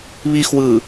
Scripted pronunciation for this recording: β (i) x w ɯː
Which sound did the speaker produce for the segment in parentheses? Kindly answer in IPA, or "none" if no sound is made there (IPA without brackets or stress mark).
i